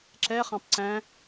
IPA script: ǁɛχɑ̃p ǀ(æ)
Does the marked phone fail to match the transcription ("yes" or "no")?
yes